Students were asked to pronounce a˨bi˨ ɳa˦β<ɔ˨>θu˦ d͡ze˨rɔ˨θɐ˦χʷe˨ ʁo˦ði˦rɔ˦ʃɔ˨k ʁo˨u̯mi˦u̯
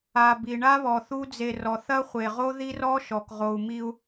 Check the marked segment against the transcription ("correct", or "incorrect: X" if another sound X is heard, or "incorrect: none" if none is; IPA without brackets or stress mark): correct